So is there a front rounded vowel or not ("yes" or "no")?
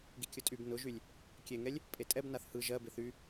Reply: yes